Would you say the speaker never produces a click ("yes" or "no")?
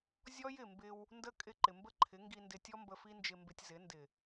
no